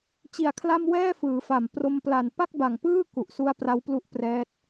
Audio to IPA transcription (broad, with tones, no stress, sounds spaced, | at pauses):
t͡ɕ i˩˦ a̯ kʰ l a˥˩ m w ɛː˥˩ f ɯː˩˦ f a˨˩ m p r o˧ m p l a˨˩ n p a˥˩ k̚ b a˨˩ ŋ p ɯː˥˩ k u˨˩ ʔ s u˦˥ a̯ p r a˦˥ w p l u˦˥ ʔ p r ɛː˦˥ t̚